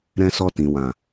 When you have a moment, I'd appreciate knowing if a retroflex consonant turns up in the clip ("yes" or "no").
no